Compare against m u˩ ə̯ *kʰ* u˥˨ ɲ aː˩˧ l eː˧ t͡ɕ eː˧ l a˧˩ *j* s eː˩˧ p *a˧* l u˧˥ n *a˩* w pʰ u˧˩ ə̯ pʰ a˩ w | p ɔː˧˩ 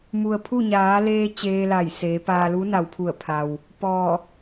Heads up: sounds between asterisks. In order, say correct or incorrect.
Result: incorrect: pʰ, correct, incorrect: aː˧, correct

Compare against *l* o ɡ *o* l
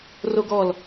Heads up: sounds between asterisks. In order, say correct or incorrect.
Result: incorrect: r, incorrect: ɔ

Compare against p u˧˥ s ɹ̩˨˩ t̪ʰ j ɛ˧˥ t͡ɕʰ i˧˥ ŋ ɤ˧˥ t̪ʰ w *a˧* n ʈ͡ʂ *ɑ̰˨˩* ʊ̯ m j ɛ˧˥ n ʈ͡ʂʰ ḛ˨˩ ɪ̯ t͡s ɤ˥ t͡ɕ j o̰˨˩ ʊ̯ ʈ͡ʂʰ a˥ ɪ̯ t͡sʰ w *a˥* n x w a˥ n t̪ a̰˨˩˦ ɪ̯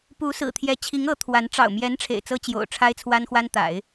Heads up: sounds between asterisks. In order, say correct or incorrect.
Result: incorrect: a˧˥, correct, correct

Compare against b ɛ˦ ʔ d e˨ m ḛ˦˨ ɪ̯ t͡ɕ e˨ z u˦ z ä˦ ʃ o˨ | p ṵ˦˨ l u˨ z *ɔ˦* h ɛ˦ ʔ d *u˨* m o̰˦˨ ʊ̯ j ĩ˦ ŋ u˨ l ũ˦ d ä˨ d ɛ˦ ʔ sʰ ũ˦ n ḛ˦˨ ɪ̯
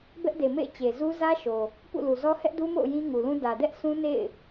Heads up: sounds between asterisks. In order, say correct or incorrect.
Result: correct, incorrect: u˦

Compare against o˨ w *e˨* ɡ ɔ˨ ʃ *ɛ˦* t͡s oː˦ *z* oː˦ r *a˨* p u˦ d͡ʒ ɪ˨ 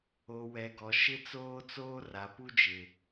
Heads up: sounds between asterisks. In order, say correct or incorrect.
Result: incorrect: ɛ˨, incorrect: ɪ˦, incorrect: t͡s, correct

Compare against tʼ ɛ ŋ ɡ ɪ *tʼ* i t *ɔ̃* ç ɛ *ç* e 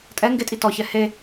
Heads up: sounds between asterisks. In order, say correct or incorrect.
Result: correct, incorrect: ɔ, incorrect: h

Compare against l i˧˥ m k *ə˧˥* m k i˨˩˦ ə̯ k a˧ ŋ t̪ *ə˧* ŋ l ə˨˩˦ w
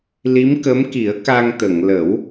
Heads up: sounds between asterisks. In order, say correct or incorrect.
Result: correct, incorrect: ə˨˩˨

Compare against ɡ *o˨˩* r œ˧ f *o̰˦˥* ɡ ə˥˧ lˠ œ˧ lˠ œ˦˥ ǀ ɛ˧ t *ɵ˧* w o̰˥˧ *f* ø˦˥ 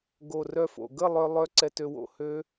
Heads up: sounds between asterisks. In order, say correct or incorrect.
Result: correct, incorrect: o̰˨˩, incorrect: ø˧, incorrect: h

